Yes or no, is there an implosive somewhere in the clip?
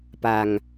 no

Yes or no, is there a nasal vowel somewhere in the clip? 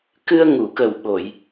no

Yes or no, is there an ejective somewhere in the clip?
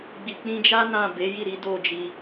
no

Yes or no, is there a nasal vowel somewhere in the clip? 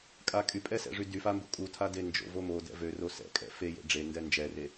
no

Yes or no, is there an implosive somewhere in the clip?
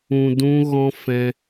no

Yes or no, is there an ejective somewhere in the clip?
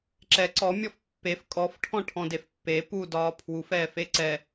yes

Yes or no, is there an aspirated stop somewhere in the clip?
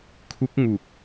yes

